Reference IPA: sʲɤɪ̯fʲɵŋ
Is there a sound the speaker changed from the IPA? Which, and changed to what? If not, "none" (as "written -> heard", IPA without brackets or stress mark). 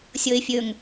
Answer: none